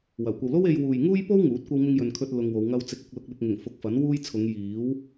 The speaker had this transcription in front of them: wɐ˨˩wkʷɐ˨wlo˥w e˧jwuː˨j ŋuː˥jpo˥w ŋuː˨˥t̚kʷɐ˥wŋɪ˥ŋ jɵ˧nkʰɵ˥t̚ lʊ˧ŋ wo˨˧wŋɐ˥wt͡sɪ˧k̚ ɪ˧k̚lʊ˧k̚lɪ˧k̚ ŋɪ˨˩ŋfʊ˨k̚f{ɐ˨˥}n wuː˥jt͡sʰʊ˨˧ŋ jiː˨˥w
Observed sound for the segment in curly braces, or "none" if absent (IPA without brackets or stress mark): ɐ˨˥